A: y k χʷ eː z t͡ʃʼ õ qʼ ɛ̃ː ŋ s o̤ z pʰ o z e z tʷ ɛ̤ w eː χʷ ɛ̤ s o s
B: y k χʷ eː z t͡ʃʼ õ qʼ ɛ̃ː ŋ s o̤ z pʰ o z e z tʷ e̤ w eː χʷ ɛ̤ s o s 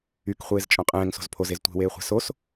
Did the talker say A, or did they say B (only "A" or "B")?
B